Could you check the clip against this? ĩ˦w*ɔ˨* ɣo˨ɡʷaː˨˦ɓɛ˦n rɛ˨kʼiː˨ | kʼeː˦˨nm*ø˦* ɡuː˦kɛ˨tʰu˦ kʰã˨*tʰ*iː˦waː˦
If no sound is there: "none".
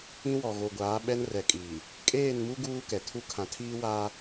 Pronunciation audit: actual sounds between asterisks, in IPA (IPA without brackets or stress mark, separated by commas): ɔ˨, u˦, tʰ